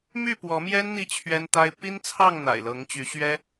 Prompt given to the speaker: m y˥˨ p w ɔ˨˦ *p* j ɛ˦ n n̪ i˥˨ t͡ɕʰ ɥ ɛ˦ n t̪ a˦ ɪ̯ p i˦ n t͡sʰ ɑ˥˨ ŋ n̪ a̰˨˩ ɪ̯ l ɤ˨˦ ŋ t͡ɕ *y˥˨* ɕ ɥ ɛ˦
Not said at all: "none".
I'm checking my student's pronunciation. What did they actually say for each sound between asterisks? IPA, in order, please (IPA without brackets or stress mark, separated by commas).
m, y˨˦